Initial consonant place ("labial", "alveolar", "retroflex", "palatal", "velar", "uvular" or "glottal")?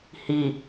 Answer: glottal